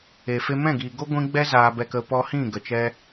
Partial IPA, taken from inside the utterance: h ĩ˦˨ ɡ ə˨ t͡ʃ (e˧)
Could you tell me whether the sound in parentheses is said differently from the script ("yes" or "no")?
yes